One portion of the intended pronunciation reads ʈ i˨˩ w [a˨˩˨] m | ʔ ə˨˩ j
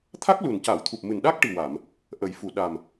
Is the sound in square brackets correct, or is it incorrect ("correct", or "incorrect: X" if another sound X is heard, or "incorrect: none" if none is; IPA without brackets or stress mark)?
correct